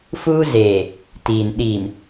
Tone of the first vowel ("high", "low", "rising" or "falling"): high